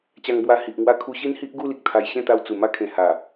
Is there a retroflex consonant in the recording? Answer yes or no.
no